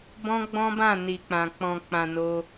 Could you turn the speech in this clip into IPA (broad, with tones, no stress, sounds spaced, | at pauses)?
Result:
b ɔ̃˦ ɡ͡b ɔ̃˦ b ã˦˨ n i˨ k͡p ã˨ k͡p ɔ̃˨ k͡p ã˨ n o˧